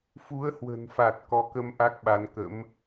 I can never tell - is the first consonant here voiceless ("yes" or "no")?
yes